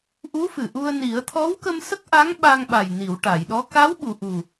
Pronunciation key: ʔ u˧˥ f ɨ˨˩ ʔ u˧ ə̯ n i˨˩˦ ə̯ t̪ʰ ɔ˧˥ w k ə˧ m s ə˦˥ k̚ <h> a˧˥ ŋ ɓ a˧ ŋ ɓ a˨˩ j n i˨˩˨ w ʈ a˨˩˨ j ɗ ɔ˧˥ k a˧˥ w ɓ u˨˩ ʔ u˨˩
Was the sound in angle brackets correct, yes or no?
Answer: no